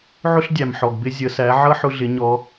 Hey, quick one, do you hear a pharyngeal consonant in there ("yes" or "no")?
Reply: yes